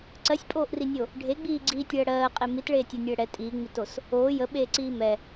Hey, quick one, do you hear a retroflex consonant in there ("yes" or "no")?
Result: yes